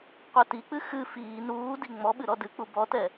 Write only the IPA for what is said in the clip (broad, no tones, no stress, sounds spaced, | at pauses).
qʷ ɛ t i k͡p ɨ x ɨ f iː n uː d i ŋ͡m ɔ ɓ ɨ ɾ ɔ d ɨ k͡p u b ɔ t ɛ